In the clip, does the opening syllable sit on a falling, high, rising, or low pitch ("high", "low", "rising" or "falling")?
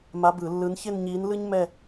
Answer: rising